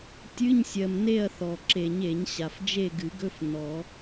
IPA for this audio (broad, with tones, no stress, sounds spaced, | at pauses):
tʲ ɨ˧˥˧ ɲ sʲ ɜ˩ m n e˦˨ ɐ̯ θ ɔ˩ ǁ e˨˩˦ ɲ e˨˩˦ ɲ ɕ a˩ f d͡ʒ e˦˨ ɡ ɨ˨˩˦ ɡ ɵ˧˥˧ f n ɔ˨˩˦